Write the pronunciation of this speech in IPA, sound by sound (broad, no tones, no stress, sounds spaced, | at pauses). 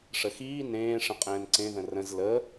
ʂ ə x iː n ẽː ʂ ə̃ qʼ ɛ̃ː n ǀ ẽ ð ə̃ r ə̃ z l ə